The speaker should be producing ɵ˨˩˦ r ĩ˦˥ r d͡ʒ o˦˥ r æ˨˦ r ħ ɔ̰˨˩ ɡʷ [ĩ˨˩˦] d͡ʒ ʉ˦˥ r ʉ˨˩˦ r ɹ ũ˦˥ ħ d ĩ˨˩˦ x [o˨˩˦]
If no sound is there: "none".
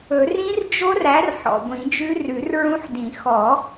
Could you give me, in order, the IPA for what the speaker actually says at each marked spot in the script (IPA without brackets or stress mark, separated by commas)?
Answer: ĩ˨˩˦, ɔ˨˩˦